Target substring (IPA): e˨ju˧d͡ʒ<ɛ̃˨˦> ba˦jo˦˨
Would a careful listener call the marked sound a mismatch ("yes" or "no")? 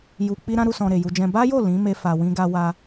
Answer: yes